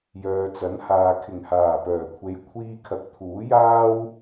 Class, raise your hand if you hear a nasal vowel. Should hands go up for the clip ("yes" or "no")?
no